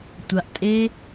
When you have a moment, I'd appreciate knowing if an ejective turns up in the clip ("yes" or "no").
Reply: yes